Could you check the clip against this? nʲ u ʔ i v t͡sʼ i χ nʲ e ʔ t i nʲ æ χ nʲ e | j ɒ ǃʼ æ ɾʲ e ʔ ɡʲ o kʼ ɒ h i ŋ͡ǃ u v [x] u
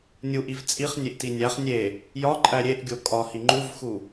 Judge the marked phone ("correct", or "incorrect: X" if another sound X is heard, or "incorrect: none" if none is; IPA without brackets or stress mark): correct